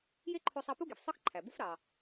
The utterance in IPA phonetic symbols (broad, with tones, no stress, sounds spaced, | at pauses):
j e˥ ǃʰ o˧ sˤ ɑ˧ p u˥ ɡ i˩ f sˤ ɯ˥ x ǃʰ æ˩ b u˥ f ɾ ɑ˩